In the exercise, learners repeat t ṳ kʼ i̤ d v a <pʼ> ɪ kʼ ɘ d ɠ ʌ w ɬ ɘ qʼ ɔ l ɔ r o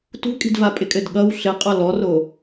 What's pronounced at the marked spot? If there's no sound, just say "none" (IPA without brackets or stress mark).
pʼ